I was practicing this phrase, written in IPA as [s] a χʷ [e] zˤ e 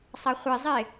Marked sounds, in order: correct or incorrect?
incorrect: sˤ, correct

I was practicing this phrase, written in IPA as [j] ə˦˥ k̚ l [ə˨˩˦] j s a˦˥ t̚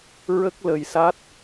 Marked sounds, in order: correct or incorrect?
incorrect: ɹ, incorrect: ə˨˩

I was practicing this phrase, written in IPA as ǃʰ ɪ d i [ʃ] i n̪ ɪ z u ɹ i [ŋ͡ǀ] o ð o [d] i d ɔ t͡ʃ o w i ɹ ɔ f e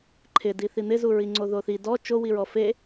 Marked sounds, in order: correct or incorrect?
incorrect: θ, correct, incorrect: θ

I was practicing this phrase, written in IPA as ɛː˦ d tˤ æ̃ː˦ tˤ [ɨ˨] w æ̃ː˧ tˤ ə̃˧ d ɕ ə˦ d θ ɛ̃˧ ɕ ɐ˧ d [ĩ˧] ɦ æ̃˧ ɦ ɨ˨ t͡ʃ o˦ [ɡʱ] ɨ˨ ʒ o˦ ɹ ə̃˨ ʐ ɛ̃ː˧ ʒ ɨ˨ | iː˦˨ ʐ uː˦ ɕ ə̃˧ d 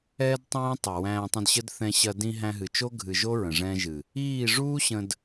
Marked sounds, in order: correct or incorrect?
incorrect: ɛ˨, correct, correct

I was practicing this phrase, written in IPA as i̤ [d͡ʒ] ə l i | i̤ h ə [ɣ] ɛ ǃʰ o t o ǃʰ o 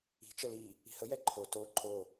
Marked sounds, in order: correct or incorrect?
incorrect: t͡ʃ, incorrect: j

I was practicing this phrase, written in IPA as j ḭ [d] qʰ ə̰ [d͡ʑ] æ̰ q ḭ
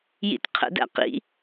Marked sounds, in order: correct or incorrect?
incorrect: t, incorrect: d

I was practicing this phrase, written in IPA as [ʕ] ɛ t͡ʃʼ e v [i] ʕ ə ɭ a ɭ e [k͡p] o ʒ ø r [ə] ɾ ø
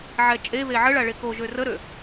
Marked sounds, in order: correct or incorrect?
correct, incorrect: e, incorrect: k, correct

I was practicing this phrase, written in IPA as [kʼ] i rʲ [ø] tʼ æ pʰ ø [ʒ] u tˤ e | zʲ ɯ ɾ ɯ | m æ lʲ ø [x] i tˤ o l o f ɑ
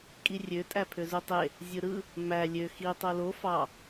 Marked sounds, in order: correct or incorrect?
correct, correct, incorrect: z, correct

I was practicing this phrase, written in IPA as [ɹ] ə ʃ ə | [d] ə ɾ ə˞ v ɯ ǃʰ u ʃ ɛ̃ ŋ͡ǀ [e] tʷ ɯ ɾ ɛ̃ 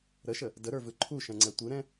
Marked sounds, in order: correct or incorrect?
incorrect: ɾ, correct, incorrect: ɛ

